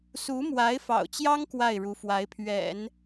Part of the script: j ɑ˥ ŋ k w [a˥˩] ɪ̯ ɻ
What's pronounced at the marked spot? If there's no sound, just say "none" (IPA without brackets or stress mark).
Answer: a˥˩